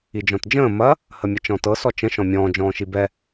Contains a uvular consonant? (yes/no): no